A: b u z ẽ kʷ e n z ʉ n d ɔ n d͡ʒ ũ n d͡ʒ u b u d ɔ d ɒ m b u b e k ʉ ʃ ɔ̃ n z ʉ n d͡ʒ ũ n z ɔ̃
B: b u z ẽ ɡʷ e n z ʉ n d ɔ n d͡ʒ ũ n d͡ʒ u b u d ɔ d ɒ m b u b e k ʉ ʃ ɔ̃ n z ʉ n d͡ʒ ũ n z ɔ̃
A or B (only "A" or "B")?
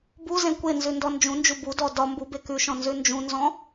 A